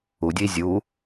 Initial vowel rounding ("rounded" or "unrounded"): rounded